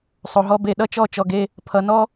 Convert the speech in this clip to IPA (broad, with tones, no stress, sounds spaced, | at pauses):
sˤ o˨ ɦ ɔ˧ b e˨ ɗ ʌ˦ t͡ʃ ɔ˦˨ t͡ʃ ɔ˨ ɡ e˧ | pʰ ʌ˨ n ɔ˦